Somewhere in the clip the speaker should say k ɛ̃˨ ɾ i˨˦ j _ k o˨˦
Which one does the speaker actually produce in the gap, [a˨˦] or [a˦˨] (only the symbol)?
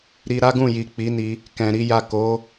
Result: a˦˨